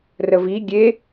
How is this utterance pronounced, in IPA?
r ə v i ɡʲ e

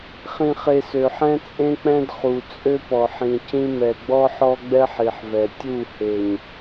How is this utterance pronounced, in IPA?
χ ĩ˨ χ e˨ s ø˨ ħ ɛ̃˦ t͡sʼ ẽ˦ k͡p ɛ̃˦ d χ u˨ t͡sʼ ø˦ p ɔ˨ ħ ĩ˨ c ĩ˦ m ɛ˨ ɡ͡b ɔ˦ ħ ɔ˦ ɡ͡b ɛ˦ ħ i˨ ħ v ɛ˨ tʲ u˦˨ h e˨ ɲ

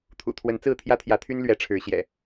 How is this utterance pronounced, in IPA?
t̪ʰ ṵ˨˩ t̪ʰ w ə˨˦ n t͡s ɹ̩˥˨ t̪ʰ j ä˦ t̪ʰ j ä˨˦ t̪ʰ y˦ n l ɥ ɛ˨˦ ʈ͡ʂʰ ɻ̩˨˦ ɕ j ɛ̰˨˩

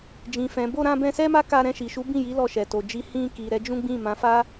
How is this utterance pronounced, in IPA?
d͡ʒ ĩ˨ f ɛ̃˨ b o˧ ɾ ã˧ b ɛ̃˧ s ɛ˦ m a˦ k a˧ ɾ ɛ̃˧ ʃ i˨ ʃ u˨˦ b ĩ˦˨ j i˨˦ l ɔ˧ ʃ ɛ˨ t o˨ d͡ʒ i˧ h ĩ˧ k i˨ ɾ ɛ˨˦ d͡ʒ ũ˦ ɡ͡b ĩ˦˨ m ã˨˦ f a˦

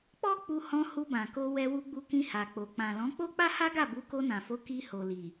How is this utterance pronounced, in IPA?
k͡p ɔ˦ k͡p u˧ h ɔ̃˧ h u˧ b ã˨ k o˧ w ɛ˧ w u˧ ɡ͡b u˧ k ĩ˧ h a˨ k͡p o˨ k͡p ã˨ l ɔ̃˨˦ k͡p o˦ k͡p a˦ h a˦ ɡ a˦˨ b u˨˦ k o˧ n ã˨ f o˨˦ k i˧ h o˨ l i˨

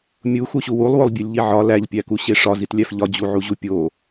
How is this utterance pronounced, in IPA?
mʲ u x u ɕ u w u lˠ w o lˠ bʲ e lʲ ʎ i ʕ ɒ l æ ʎ pʲ æ k u ɕ e ʂ ɒ z i t lʲ æ f ʎ ɒ d͡ʑ u ʕ u ʑ u pʲ o

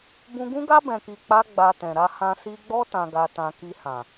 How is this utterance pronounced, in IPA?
b ũ˧ ɡ ũ˦ ɡ a˦ b ɛ̃˧ k i˧ k͡p a˦ ɡ͡b a˧ t ɛ̃˨ ɾ a˧ h ã˧ s i˧ ɡ͡b ɔ˦ t ã˧ ɡ a˧ t ã˧ k i˧ h ã˨

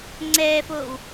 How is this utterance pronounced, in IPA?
ŋ͡ǀ ɛː f oː w

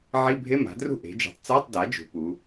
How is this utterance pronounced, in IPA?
ʕ i˧˥˧ bʱ e˧˥˧ m a̤˩˥ d r ṳ˥˩ ʔ e̤˩˥ d͡ʒ ṳ˩˥ tˤ t͡s a˧˥˧ tˤ d a˩˥ d͡ʒ ṳ˩˧ p u˩˧

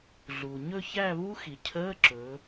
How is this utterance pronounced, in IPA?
ɮ u˩ ɲ ɵ˦˨ ç æ˦˨ β u˦˥ x i˩ cʰ əː˧˥˧ ǁ ɵ˩˧

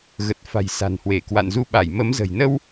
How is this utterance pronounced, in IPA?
ɣ ə˨˩ t̚ f a̤˨˩ j s a̤˨˩ n h w e˧˩ k w a̰˧˨ n z u˧ ɓ a˧˩ j m ə˨˦ m z ə̤˨˩ j n ə˧ w

